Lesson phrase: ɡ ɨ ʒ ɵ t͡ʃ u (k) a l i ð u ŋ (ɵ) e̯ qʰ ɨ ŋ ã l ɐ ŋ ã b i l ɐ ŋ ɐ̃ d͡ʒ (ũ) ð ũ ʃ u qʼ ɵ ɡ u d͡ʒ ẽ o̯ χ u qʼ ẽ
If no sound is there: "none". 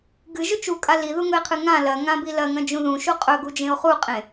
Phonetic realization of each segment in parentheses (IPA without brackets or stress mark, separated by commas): kʼ, ɵ, ũ